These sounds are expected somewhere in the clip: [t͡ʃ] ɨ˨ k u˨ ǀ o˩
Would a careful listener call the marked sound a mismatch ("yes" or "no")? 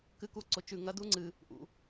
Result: yes